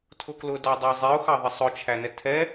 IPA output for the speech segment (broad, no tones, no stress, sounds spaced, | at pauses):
tʰ ʊ k l ʊ d ɑ dˤ ɑ zˤ i ʊ̯ x ɑ ðˤ ɛ sˤ ʊ t͡ʃʰ æ n ɛ tʰ ɛ